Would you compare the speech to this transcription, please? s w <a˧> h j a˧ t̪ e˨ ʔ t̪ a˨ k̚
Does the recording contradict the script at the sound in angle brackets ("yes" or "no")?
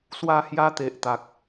no